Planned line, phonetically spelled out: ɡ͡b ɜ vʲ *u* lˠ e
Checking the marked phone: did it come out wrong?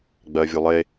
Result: no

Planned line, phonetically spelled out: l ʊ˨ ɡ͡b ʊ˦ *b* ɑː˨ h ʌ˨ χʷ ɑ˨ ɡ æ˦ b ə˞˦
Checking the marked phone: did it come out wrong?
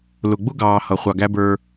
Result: yes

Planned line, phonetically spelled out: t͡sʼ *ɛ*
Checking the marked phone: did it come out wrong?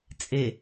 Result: yes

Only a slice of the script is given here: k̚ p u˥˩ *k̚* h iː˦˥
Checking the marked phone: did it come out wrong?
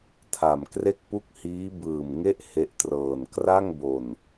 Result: no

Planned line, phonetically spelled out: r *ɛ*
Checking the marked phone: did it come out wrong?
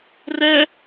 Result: no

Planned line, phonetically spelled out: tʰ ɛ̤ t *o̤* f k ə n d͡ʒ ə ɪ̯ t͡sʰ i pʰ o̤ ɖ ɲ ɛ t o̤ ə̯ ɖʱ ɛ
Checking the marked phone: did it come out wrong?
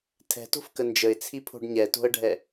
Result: no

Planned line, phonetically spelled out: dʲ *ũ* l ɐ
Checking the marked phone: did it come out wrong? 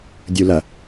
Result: yes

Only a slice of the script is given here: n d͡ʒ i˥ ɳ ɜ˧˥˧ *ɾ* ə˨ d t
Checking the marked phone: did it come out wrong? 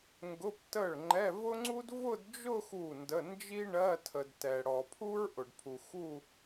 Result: yes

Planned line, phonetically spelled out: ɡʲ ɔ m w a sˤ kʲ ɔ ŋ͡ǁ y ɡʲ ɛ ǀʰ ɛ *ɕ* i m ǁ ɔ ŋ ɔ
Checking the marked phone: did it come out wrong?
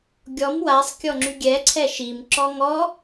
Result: yes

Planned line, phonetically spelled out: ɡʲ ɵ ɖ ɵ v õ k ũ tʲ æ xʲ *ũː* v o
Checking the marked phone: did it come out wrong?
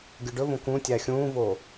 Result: no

